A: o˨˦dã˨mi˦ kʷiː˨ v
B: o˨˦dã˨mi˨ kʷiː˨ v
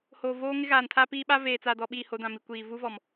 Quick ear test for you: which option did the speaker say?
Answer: B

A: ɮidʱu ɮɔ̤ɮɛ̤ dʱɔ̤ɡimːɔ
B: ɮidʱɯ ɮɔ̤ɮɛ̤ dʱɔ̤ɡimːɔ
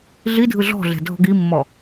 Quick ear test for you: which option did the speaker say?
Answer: B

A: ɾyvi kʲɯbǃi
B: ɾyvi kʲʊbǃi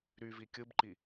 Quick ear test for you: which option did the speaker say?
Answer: A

